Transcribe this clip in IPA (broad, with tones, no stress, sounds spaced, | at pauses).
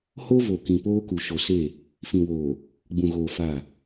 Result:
h o˦ v o˨ k ĩ˨ p oː˦ k u˨ ʃ o˨ s e˦˨ | f ĩ˨ w oː˨ | ɡ͡b ũ˨ ɣ oː˨ f a˦˨